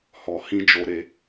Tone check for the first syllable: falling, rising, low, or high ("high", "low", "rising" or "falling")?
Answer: low